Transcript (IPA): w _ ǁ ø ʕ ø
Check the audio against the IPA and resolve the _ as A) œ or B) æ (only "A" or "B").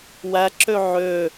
B